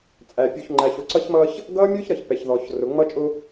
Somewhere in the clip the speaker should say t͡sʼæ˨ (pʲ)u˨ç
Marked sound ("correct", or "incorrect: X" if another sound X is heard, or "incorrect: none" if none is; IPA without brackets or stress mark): correct